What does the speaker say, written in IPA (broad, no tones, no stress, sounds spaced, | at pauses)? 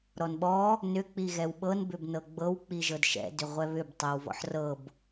ɾ ɔ n ɓ ɔ | n ʏ k͡p i ɣ ɛ w ɓ ɤ n b ʏ b n ɤ ɡ͡b ɤ w k͡p i ʒ ɤ d ʃ ɛ̰ d ʏ ʁʷ ɛ β ʏ b tˤ ɛ w v ɔ̰ ħ r ɤ b